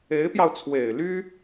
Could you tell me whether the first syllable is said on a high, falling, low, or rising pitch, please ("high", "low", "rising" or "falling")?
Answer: rising